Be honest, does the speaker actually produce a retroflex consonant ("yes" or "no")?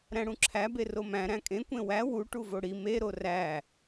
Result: yes